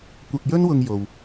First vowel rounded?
no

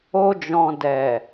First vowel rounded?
yes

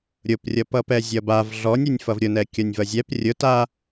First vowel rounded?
yes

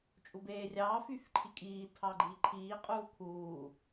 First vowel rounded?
yes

